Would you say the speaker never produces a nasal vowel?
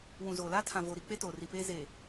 no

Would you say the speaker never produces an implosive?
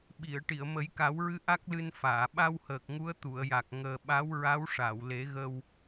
no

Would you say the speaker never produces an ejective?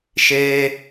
yes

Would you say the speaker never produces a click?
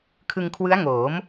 yes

